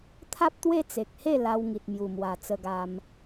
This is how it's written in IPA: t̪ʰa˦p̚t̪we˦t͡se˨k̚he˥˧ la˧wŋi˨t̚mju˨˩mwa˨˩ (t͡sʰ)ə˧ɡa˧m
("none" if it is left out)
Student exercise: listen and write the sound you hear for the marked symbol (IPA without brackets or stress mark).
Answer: t͡s